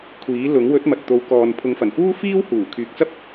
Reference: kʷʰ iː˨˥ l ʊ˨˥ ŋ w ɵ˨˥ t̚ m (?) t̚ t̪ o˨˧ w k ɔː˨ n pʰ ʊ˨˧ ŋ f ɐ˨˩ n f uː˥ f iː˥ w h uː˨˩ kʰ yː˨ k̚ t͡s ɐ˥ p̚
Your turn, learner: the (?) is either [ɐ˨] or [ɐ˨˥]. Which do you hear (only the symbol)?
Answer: ɐ˨